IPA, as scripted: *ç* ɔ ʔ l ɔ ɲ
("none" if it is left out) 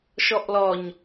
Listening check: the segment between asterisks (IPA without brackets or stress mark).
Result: ʃ